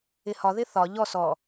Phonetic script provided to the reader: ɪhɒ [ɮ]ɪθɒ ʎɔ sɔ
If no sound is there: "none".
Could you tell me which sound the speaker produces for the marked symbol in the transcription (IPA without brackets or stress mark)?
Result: ð